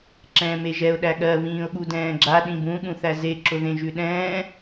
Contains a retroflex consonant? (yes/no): no